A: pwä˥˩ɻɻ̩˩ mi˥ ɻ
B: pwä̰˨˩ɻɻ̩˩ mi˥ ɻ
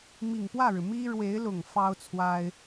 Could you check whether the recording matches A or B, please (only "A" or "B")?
A